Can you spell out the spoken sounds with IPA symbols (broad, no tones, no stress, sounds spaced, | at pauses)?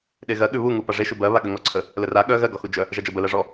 ɗ e ɣ ɜ ɠ ʉ β u ŋ u p a ʐ e ʃ u b ɜ β a ɠ ə ŋ ɔ ǀʰ ə | l ə r a ɠ œ ɣ ɜ ɡ ɔ x u d͡ʒ œ | ʒ a d͡ʒ ɜ b ə l ɜ ʐ ɔ